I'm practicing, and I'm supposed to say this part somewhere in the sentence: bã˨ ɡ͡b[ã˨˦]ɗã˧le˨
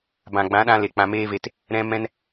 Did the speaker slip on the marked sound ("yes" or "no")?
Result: no